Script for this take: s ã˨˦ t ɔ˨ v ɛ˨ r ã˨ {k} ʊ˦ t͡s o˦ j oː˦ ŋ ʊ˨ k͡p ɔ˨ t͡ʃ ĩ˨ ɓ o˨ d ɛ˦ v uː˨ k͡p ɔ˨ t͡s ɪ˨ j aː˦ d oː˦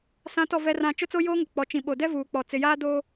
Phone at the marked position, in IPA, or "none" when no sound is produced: t͡ʃ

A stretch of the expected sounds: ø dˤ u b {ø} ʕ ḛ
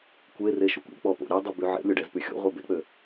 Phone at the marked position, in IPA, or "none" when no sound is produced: y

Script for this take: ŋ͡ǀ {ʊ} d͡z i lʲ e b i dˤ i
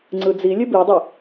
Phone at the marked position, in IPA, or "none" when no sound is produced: ɯ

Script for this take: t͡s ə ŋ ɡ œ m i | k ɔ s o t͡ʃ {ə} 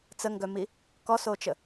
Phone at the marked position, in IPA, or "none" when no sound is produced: ə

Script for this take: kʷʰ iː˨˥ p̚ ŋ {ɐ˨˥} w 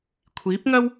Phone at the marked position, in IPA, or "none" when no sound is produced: ɐ˥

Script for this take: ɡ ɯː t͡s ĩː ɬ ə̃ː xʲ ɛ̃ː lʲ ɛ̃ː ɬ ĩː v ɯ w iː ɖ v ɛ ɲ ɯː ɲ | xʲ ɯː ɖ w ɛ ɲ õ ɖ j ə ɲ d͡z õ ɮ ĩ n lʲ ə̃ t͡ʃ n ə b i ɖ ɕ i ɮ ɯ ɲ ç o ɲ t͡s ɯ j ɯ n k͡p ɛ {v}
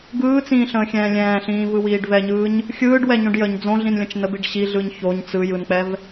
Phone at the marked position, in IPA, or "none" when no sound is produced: v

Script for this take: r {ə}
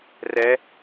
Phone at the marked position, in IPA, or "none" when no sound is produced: ɛ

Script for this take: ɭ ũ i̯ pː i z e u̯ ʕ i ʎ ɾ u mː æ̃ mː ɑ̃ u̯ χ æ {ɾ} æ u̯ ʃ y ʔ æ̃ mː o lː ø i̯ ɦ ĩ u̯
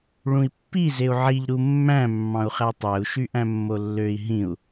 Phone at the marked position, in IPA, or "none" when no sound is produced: tˤ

